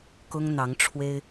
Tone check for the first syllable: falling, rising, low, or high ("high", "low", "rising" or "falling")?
high